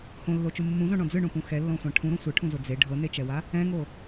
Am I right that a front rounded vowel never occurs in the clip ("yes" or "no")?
yes